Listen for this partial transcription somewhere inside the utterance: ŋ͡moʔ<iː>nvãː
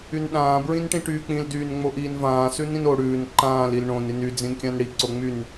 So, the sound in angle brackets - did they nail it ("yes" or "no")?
yes